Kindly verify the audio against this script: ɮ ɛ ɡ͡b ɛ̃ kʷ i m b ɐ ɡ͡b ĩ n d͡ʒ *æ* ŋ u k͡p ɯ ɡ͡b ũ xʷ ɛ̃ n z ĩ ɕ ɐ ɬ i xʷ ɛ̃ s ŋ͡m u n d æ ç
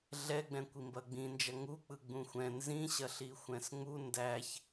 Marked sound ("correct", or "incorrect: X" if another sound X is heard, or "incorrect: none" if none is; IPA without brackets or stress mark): incorrect: ɐ